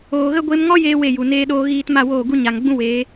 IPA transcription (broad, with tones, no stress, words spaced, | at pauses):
oː˨ɣə˦ɡʷe˦m ŋɔ˦jeː˧ we˦˨ju˨ neː˧ɗoː˧ɣiː˧t ma˦˨woː˦˨ɡu˦ ɲa˨ŋɡ͡bũ˦ we˨˦